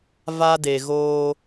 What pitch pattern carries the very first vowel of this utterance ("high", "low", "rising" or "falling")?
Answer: high